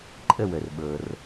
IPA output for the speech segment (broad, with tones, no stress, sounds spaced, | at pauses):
ǃʼ ə˥˧ w ə˨ r ɓ ɤ˨ r